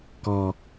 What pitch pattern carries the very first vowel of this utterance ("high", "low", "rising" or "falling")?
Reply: low